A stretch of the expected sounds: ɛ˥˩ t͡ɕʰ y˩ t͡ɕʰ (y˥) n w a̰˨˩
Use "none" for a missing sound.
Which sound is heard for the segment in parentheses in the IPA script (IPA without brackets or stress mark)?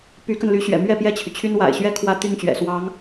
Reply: y˥